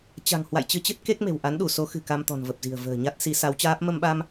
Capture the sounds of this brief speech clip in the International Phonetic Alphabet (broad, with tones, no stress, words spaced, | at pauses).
t͡ɕa̤˨˩ŋ hwa̰˧˨jt͡ɕɨ˧t͡ɕɨ˦˥t̚ ke˦˥k̚me̤˨˩w ʔa˨˦nɗu˧˩so˨˦ xɨ̤˨˩ka˧m t̪ɔ̤˨˩nvə˨˩p̚zi̤˨˩ə̯ və̤ː˨˩ɲa˦˥t̚si˨˦ sa˨˦wt͡ɕaː˦˥p̚ mə˧mɓa˧m